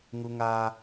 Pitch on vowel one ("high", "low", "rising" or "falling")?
high